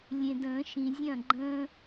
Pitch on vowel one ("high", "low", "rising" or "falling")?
low